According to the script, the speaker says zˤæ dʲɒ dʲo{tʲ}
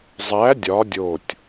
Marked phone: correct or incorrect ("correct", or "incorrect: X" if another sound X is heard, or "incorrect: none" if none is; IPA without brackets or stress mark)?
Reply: correct